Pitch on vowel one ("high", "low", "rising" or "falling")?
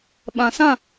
low